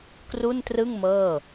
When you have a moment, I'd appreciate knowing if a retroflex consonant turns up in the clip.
no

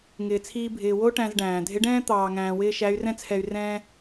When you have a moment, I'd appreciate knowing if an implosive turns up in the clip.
no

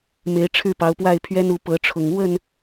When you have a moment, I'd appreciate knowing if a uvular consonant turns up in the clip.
no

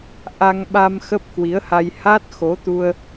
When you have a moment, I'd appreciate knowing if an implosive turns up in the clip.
yes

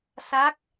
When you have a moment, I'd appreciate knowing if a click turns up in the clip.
no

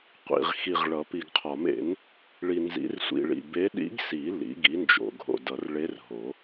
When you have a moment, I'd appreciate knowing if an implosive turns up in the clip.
yes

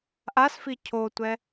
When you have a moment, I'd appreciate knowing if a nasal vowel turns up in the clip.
no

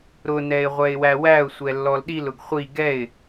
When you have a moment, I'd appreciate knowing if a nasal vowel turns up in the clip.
no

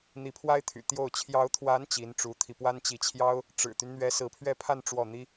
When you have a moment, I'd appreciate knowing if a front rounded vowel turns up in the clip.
yes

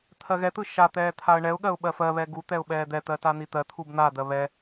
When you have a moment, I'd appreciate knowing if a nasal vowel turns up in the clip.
no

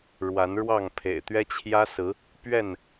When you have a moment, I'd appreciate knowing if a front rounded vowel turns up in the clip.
no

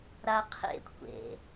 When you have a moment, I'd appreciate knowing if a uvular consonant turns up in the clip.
yes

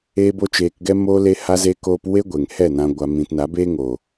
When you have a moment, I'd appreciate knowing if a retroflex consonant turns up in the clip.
no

